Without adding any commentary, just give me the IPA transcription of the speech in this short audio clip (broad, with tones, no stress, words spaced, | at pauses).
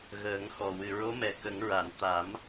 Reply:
ɣəː˨˩˦ŋxɔ˨˩ wɨ˨˩ɹo˧˥mɛ˨˩ kə˨˩˦ŋɹa˨˩˨n t̪a˨˩˦m